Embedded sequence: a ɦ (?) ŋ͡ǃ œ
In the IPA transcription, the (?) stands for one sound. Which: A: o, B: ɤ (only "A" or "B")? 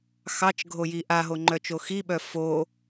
A